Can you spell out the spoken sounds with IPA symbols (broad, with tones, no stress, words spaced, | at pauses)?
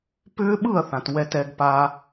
pʏː˦˥ɓɯ˥˨ɐ̯θã˨t wɛ˨tɛ˨ɡpa˨